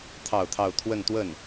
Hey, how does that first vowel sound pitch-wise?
falling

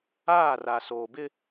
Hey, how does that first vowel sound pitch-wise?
falling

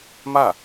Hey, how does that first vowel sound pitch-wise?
falling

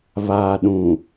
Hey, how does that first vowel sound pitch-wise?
low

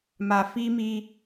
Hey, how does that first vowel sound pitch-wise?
low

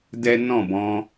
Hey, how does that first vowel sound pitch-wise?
high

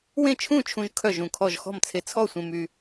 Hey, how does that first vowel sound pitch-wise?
falling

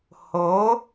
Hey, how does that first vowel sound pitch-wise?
rising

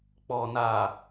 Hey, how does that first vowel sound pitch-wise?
low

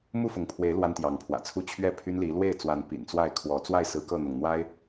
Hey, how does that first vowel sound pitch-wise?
falling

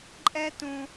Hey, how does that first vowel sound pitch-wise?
high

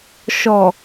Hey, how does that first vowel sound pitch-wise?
low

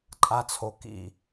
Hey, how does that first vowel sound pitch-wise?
high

